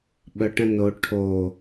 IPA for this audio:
ɓ œ ʈ ə̃ n o ʈʰ o

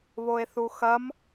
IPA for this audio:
β o e̯ θ u x ɐ m

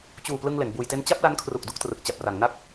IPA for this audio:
t͡ɕ uː˨˩ p l ɯ˧ ŋ l e˩˦ n b uː˧ j t e˥˩ n t͡ɕ a˥˩ p̚ l a˦˥ n kʰ r u˨˩ k̚ d u˥˩ k̚ t r ɯ˨˩ k̚ t͡ɕ a˨˩ p̚ r a˩˦ ŋ n a˥˩ k̚

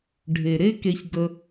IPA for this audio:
ɖʱ e˨ ɾ e˦ k e˧ ç ɡ ə˧

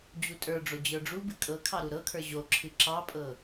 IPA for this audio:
d͡ʑ u tʼ ə˞ ɖ͡ʐ o d͡ʑ ə˞ ɖ͡ʐ u b ɨ kʼ ɤ kʰ ɑ ɾ u ɾ ɤ kʰ ə˞ ʑ o ǁʰ ɨ ǁ ɑ pʼ ɤ

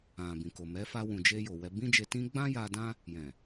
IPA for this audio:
ã˨ b ĩ˨ k o˨ m ɛ˨˦ f a˧ w ũ˨ d͡ʒ e˧ j o˨ w ɛ˧ b ĩ˦ d͡ʒ e˧ t ĩ˦ ɡ͡b ã˦ j a˧ d ã˦ | j ɛ̃˨

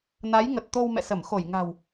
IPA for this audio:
n a˨˦ j ŋ ə˨˩ t̚ t̪ o˧ w m ɛ̰˧˨ s ə˧˩ m x o˧˩ j ŋ a̤˨˩ w

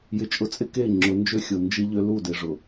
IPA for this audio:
j ɪ˨ t͡ʃʼ ʊ˨ t͡sʼ ɪ˦ k e˦˨ ŋ͡ǁ ʊ˨˦ n d͡ʒ ø˦˨ xʲ o˨ n d͡ʒ i˦ ʎ ø˦ l u˦˨ d ɪ˨ ʐ ʊ˨

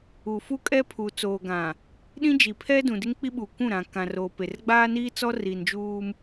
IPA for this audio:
u˨ f u˦ kʼ ɛ˦ pʰ u˨ t͡s oː˨ ɡ ã˨ | ɗ ĩ˦ d͡ʒ i˨ pʰ ɛ˦ d ũ˨ d ɪ˦ ŋ k͡p i˦ ɓ uː˨ kʷ ũ˦˨ ɾ ã˨ k ã˨ r o˨ p e˨ r ɡ͡b aː˦ n iː˦ t͡s ɔ˦ r iː˨ n d͡ʒ uː˦ m

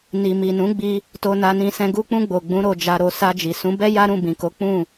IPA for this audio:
n i˨ m i˨ n ũ˨˦ ɡ͡b i˧ | t o˧ n a˧ n ĩ˧ s ɛ̃˧ ɡ u˧ k͡p ũ˧ ɡ͡b o˨ ɡ͡b ũ˨˦ ɾ o˧ d͡ʒ a˧ ɾ o˧ s a˧ d͡ʒ i˨ s ũ˨˦ b ɛ˦ j a˦ ɾ ũ˦˨ b ĩ˨ k o˨˦ k͡p ũ˦˨

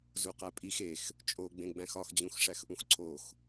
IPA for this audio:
z u q æ pʼ i x e x | t͡ʃʼ o ɡ͡b ẽ ɡ͡b æ̃ x ɒ x d͡ʑ ũ x ʂ æ x ʔ ũ x ǀʰ o x

